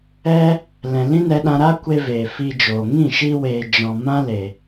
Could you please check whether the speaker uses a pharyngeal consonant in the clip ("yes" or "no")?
no